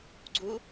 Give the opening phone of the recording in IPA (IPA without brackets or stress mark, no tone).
ɡ͡ǀ